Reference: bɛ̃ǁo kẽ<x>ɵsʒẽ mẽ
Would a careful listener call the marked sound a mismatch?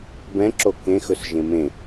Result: no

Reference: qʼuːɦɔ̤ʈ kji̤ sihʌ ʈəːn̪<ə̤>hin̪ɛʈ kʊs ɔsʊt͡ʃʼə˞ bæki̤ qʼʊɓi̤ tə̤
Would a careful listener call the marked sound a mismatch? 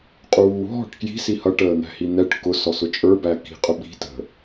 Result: yes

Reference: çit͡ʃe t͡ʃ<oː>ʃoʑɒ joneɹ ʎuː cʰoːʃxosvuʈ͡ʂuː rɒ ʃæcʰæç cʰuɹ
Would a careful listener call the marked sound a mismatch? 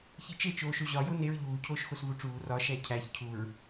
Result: no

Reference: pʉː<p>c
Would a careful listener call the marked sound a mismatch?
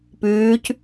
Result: yes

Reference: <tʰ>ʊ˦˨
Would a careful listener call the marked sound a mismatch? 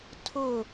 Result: no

